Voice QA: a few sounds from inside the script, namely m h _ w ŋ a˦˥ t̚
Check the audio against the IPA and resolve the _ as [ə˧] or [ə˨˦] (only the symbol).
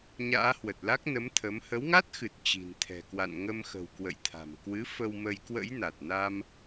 ə˨˦